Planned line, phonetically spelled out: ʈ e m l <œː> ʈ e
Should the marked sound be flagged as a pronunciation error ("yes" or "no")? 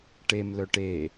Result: yes